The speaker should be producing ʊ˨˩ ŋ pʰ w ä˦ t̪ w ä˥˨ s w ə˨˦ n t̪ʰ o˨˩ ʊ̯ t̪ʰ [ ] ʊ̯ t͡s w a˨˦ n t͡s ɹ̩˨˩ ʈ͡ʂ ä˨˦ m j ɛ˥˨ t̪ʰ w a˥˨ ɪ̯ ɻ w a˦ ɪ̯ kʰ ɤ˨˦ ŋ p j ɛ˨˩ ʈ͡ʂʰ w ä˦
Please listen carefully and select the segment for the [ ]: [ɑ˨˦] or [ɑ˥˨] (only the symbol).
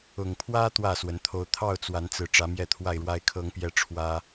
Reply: ɑ˥˨